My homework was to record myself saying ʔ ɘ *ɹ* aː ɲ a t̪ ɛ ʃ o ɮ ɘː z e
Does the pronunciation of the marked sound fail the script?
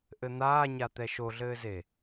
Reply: yes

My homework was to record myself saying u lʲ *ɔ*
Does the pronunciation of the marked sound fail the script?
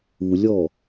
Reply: no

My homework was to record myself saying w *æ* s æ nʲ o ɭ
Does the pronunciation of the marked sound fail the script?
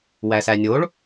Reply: no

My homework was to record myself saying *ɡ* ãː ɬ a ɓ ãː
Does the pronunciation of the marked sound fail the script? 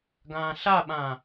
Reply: no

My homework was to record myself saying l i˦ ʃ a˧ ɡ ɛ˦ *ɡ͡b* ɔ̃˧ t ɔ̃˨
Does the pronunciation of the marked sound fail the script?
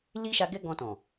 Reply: yes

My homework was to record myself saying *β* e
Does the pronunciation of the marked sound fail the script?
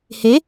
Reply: yes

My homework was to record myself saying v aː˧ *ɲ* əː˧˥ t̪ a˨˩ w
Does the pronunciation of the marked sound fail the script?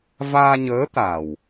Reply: no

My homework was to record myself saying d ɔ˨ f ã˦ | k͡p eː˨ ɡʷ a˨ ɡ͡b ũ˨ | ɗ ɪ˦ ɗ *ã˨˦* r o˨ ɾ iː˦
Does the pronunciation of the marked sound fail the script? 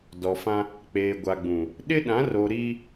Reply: no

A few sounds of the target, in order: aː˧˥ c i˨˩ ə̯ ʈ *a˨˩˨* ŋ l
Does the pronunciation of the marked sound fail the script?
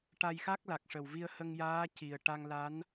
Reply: yes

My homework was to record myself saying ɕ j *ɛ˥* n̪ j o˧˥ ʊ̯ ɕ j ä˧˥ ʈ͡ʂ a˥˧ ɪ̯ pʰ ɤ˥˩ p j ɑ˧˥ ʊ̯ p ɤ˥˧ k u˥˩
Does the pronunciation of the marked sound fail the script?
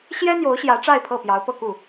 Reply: no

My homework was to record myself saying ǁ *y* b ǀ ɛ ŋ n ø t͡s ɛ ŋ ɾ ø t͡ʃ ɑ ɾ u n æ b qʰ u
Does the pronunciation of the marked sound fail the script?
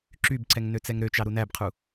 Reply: no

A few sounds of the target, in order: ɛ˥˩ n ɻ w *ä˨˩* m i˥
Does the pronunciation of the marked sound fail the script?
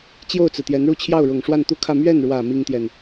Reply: no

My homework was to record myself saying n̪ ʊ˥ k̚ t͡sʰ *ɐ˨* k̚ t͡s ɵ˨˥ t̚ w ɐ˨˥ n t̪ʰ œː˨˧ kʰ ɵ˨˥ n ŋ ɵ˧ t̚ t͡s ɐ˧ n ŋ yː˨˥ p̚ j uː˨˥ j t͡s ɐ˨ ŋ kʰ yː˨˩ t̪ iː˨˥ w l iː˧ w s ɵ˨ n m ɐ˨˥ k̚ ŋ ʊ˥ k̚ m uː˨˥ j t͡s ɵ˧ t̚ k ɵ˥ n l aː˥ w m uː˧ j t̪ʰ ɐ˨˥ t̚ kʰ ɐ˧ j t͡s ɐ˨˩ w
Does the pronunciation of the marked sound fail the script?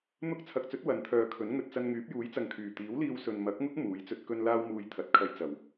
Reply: no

